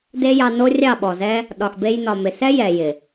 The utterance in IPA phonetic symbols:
d e˦ j ɑ˧ n o˦ rʲ ɑ˦˨ ɓ ɔ˨ z ɛ˦ | ɗ ɒ˨ x b e˧ j n ɒ˨ m ɪ˨ s ɛ˦ j ɛ˨ j ɪ˨

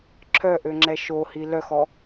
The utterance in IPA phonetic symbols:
ǁʰ œ ʔ ø ŋ͡ǁ ɛ ʃ o h i l œ x ɔ

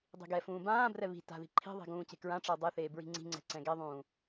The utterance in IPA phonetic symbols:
dˤ i̤ ɡ ɛ f ũː b ãː b r ɛ β i̤ t a̤ ð i̤ ǃʰ i̤ ðˤ i̤ ɡ ũː c e̤ k ɹ ã ʈ͡ʂ ə˞ dˤ e θ eː b ɹ i̤ ŋ͡ǀ i̤ ŋ͡ǀ ɛ̤ ǀ ɛ̃ ɡ ɛ ðˤ ũː

